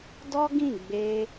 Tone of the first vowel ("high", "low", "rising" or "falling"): high